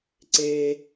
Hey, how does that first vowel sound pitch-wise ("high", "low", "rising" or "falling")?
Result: low